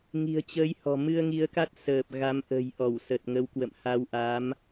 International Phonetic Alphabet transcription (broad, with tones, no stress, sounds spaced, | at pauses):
ŋ i̤˨˩ ə̯ t͡ɕ əː˨˦ j h ɔ̤˨˩ m ɨ˧ ə̯ ŋ i˨˦ ə̯ k a˦˥ t̚ s əː˨˩ p̚ ɣ a˨˦ m ʔ ə̤˨˩ j ʔ ɔ˧˩ w s ə˨˩ t̚ ŋ ə˨˦ w k w ə̰˧˨ m h a˧ w ʔ a˨˦ m